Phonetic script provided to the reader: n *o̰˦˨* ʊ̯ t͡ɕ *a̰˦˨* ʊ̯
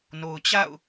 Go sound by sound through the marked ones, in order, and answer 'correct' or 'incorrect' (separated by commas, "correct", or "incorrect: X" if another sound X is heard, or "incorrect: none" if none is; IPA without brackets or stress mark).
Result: incorrect: o˨, correct